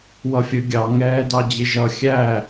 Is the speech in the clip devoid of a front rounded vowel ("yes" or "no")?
yes